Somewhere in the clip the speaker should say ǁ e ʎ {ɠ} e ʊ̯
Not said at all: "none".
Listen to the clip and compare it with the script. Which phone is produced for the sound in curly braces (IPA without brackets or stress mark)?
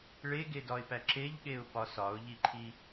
ɠ